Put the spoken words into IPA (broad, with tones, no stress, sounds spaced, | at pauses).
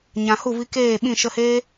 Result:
ɲ ã˨ h u˦˨ v i˧ k eː˦˨ ɓ ĩ˦˨ ʃ ə˧ h eː˦